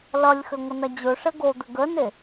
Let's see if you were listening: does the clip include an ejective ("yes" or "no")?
no